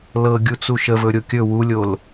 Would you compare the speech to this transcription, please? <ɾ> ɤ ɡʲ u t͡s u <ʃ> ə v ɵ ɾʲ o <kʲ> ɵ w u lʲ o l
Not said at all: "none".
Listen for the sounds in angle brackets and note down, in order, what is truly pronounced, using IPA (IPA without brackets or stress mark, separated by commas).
l, ʃ, kʲ